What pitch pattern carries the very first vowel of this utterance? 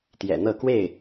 low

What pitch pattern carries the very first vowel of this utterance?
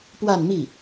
falling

